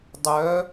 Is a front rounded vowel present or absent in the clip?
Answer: present